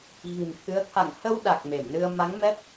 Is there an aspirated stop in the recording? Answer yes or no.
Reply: yes